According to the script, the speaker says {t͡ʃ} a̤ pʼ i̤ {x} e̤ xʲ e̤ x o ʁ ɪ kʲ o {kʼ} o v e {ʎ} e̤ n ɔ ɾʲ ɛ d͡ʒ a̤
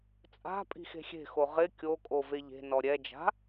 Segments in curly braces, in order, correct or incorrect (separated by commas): incorrect, correct, correct, correct